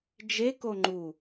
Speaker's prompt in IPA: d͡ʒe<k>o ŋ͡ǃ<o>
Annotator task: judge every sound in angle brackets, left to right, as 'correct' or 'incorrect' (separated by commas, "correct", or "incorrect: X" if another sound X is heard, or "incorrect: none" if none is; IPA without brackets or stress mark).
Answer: correct, incorrect: u